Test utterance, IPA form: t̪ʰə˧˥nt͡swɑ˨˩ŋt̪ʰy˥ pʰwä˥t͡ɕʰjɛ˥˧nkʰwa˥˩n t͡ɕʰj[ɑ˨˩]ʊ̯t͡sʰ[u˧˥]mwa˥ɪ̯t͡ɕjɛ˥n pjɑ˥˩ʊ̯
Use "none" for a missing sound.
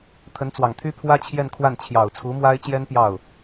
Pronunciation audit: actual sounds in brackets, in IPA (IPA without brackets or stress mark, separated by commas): ɑ˨˩, u˧˥